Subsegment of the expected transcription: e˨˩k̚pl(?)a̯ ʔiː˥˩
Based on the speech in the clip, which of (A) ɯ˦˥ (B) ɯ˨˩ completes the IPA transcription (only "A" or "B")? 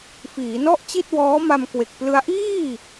A